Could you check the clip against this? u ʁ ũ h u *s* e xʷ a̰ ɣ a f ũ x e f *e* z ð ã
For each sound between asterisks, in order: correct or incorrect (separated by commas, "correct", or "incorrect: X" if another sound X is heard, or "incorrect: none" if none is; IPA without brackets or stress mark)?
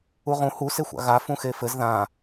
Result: correct, incorrect: ɘ